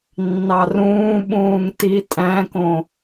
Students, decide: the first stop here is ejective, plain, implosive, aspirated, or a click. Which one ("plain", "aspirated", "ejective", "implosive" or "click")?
implosive